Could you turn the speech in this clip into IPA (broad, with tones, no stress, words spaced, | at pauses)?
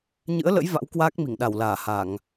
ɲɨ̰˧˥ə̯lə̰˧˥j va̰˧˥wkwaː˦˥k̚mi˧˩ŋɗa˧˩w laː˧˩ha˧˩˨ŋ